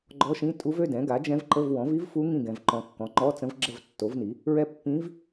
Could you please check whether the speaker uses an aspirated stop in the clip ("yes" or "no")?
no